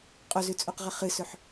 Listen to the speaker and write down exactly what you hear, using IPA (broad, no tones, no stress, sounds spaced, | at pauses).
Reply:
qʼ o z ʉ t͡sʼ o q ʁ ɐ χ ɨ s ɵ ħ